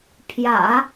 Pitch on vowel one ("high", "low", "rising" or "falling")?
low